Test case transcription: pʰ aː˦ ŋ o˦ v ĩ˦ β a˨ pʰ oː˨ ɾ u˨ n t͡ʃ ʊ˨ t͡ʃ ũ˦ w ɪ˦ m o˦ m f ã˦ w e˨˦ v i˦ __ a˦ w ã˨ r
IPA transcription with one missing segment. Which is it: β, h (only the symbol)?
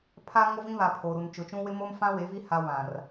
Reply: h